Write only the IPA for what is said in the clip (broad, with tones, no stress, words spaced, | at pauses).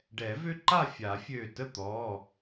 ɖɛ˨˩˦vø˦ǃa˥˨ fʲa˨˩˦fʲø˧˩tə˥˨t̪ɔ˩˧˩